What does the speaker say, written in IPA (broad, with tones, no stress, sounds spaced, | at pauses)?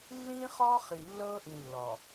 lː ĩː˦ χ ɔː˦ χ i˨ lː ɤː˦ ʔ ĩ˨ lː ɔ˨